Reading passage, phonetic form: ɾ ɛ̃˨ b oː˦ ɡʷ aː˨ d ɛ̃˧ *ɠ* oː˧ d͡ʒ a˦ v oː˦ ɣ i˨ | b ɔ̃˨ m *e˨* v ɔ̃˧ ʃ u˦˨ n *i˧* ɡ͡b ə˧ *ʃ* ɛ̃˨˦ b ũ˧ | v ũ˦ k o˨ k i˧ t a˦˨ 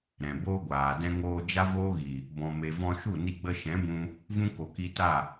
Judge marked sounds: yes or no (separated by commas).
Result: no, yes, yes, yes